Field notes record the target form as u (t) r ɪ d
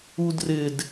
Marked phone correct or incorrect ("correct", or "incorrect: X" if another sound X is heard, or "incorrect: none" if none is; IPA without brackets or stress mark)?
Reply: incorrect: d